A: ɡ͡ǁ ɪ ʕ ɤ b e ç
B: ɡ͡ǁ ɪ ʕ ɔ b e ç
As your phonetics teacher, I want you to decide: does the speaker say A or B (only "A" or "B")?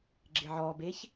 B